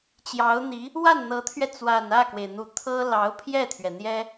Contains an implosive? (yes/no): no